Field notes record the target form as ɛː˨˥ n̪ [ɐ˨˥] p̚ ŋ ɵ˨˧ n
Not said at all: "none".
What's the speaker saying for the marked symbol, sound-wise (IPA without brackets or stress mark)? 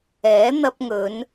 ɐ˧